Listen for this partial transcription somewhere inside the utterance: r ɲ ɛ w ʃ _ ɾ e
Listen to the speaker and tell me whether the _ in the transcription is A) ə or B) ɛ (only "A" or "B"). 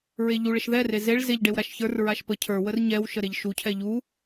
A